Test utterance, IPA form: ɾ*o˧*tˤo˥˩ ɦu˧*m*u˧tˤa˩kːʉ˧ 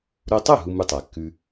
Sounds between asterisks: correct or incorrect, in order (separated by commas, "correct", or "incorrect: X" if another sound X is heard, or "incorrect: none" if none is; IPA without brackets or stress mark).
correct, correct